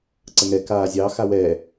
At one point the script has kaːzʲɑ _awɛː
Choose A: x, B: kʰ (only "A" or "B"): A